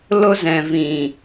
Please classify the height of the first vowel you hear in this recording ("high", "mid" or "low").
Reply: mid